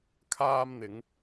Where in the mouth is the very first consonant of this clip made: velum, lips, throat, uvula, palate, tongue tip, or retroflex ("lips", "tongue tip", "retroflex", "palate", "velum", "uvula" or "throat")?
velum